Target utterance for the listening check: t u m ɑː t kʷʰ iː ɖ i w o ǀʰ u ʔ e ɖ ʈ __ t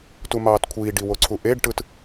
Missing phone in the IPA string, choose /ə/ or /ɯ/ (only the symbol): ɯ